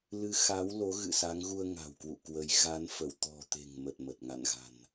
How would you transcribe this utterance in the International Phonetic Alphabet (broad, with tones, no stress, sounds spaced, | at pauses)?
l ɨ˨˦ x a˨˦ w l o˨˦ ɣ ɨ̰˧˨ s a˨˦ ŋ ɣ u˧ ə̯ ŋ a̤˨˩ w k w ṵ˧˨ k w ə˨˦ j ɣ a˨˦ n f ə˧˩ w t̪ ɔ̤˨˩ t̪ e̤˨˩ ŋ m ə˨˩ t̚ m ə˨˩ t̚ ŋ a̰˧˨ n ɣ a̤˨˩ n